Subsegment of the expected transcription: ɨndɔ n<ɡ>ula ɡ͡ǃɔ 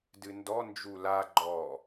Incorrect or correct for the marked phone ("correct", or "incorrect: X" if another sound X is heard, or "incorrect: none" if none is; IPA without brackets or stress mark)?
incorrect: d͡ʒ